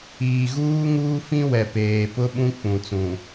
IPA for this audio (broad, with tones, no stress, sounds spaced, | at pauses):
iː˨ ɣ uː˦ ŋ uː˦ f ĩ˦ w ɛ˨ p eː˨ p ʊ˦ ɓ ũ˦ k͡p ũ˨ t͡s ũ˨